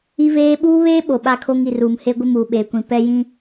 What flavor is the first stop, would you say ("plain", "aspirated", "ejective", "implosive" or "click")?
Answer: implosive